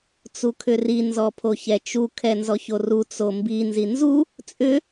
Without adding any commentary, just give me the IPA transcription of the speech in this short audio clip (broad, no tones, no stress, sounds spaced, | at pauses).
t͡s u kʰ ʏ r i n z ɔ pʰ o ç ɛ t͡ʃ u kʰ ɛ n z ɔ ç o r u t͡s o m b i n z i n z u | t͡sʼ ʏ